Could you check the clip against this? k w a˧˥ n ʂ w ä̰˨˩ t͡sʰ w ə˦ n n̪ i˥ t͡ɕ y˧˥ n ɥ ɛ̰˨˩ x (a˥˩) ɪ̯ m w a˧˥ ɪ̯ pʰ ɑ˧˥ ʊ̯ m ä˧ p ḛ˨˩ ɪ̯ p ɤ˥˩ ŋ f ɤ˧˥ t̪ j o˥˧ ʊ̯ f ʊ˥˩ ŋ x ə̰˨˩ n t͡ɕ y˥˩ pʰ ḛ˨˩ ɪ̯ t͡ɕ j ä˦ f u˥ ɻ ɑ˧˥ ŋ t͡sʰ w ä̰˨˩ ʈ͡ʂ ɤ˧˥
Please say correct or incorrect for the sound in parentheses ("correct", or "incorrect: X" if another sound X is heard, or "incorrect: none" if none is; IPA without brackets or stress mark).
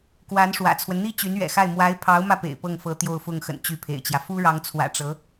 correct